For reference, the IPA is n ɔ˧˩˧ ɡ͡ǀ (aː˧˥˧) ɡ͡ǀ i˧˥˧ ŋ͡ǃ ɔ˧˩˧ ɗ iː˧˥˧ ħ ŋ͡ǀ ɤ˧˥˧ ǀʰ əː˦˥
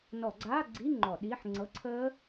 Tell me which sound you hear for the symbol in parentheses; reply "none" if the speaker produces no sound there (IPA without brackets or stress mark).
aː˧˥˧